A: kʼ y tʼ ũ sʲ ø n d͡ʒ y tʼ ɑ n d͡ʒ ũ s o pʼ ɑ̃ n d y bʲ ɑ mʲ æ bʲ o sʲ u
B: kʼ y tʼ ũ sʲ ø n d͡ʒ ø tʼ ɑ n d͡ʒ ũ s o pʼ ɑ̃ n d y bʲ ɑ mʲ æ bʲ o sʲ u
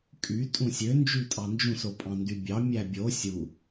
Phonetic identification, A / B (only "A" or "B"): A